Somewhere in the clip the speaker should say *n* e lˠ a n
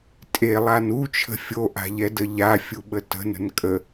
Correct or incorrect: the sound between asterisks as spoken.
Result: incorrect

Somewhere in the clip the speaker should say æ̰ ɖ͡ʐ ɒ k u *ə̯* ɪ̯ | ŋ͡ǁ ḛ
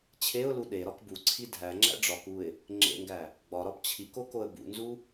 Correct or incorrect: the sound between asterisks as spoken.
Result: incorrect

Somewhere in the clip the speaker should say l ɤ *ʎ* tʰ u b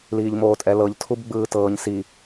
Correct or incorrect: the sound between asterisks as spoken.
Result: correct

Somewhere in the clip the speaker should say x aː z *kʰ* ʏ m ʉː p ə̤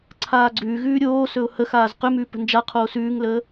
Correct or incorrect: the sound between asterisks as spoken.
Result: incorrect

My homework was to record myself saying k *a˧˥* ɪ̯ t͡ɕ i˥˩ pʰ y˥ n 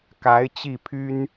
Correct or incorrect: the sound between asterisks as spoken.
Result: correct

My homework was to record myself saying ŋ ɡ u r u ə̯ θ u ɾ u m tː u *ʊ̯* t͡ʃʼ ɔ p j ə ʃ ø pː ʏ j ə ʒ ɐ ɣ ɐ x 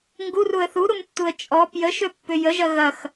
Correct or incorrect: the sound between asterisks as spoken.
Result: incorrect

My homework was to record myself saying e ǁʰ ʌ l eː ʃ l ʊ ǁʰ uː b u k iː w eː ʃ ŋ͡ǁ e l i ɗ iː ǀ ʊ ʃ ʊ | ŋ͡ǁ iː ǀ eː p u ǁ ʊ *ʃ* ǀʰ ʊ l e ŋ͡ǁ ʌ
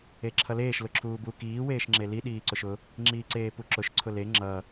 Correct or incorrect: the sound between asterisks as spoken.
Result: correct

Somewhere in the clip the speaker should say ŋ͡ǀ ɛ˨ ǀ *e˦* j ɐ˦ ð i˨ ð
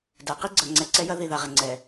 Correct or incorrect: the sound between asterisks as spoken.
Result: incorrect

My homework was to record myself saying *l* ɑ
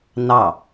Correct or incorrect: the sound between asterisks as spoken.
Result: incorrect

